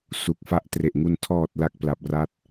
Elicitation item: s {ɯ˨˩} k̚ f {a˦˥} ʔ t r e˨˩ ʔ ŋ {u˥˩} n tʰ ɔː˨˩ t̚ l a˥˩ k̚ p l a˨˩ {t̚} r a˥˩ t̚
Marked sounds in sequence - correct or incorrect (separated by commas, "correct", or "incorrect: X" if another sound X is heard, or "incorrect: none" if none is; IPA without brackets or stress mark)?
incorrect: u˨˩, correct, incorrect: u˧, incorrect: p̚